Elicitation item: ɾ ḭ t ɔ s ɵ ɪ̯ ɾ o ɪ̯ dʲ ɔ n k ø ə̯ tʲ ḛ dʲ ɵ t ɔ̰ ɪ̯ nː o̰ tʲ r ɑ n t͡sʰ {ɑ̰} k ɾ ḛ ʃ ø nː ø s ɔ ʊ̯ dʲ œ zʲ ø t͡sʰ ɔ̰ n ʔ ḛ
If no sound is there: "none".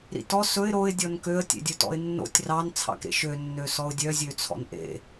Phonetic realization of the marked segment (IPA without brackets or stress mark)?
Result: ɑ̰